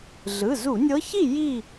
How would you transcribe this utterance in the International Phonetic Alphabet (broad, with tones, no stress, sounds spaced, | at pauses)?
ɮ ɯ˩˧˩ z u˧˩˧ nʲ ɤ˧˥ ç i˥˨ j i˥˨